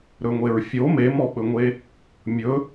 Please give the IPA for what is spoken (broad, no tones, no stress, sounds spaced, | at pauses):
ɾ ɵ ŋʷ e ɹ fʲ o m e m ɔ ɓ ɵ ŋʷ e | mʲ ɵ